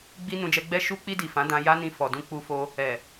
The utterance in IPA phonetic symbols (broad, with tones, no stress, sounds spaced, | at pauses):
ɡ͡b i˧ n ũ˧ d͡ʒ ɛ˧ ɡ͡b ɛ˦ ʃ u˧ k͡p i˧ d i˨ f ã˨˦ d ã˧ j a˦ n ĩ˧ f ɔ˨ d ũ˧ k͡p u˧ f o˧ | ɛ˨